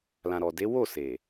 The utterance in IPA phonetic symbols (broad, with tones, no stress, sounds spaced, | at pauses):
l ã˨ ɾ ɔ˨ d e˨˦ w o˦˨ s e˨